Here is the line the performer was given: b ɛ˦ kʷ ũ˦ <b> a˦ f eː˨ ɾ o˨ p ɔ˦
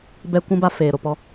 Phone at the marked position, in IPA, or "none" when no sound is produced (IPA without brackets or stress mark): b